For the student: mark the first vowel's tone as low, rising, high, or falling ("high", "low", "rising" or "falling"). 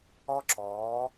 high